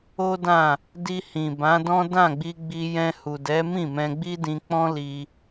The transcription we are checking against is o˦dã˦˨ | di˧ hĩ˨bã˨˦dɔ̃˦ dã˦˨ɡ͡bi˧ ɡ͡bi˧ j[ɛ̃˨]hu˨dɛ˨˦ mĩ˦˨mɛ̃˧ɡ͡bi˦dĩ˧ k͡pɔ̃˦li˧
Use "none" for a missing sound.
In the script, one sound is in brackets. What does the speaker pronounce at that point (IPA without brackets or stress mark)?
ɛ̃˧